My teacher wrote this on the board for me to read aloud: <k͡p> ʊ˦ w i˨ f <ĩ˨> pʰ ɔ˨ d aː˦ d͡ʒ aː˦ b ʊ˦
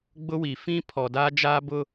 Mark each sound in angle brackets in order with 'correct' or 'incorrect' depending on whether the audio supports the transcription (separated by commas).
incorrect, incorrect